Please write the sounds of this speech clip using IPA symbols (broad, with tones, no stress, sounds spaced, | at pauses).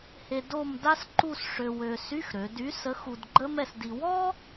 h e˧ d o˥˧ m d a˥ s ǃ u˥˧ s ʂ ø˧ w ø˧ s y˧˥˧ x ɾ ø˩˧ d y˨˥ s ə˨˥ x u˧ d ɡ͡ǃ ə˥ m ɛ˧ s d i˧ w ɔ˥